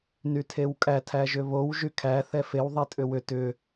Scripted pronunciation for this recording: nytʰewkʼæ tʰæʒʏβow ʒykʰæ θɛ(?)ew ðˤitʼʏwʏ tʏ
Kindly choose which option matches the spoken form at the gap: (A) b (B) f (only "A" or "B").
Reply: B